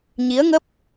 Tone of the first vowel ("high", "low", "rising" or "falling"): rising